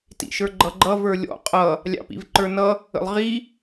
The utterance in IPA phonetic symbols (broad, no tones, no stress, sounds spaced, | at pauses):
t ḭ ʃ ə˞ ɡ͡ǃ ʌ ɡ͡ǃ ʌ v ə˞ lʲ ɔ̰ qʼ ʌ | lʲ ɑ̰ p ḭ v ǃ ə˞ n ʌ | ə̰ lˠ ʁ i